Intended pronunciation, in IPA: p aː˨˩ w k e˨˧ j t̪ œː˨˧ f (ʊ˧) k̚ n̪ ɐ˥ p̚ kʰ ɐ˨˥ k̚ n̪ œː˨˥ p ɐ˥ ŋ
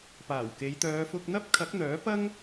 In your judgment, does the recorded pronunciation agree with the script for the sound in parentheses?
yes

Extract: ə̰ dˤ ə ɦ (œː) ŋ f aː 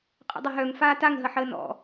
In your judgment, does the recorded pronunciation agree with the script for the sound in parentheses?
no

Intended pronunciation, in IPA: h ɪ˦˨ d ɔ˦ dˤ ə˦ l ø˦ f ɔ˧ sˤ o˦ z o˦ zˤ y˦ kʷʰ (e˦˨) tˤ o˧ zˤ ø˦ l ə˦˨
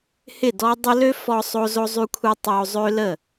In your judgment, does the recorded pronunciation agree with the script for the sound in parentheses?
no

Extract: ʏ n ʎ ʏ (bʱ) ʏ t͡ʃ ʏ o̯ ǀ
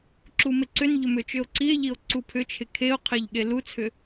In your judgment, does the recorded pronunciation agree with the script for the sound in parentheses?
no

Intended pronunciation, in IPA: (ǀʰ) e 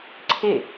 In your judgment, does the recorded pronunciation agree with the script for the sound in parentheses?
yes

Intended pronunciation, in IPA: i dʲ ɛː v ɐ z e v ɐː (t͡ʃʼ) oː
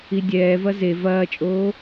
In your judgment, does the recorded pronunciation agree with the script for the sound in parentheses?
yes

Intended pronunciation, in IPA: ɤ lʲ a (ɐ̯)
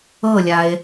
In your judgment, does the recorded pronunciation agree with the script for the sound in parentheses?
no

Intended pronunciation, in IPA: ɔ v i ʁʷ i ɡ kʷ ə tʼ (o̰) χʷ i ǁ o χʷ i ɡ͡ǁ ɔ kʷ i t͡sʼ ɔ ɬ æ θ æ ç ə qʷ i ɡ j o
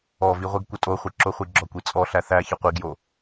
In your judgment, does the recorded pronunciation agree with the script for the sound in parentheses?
no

